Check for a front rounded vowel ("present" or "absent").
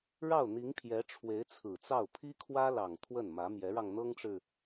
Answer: absent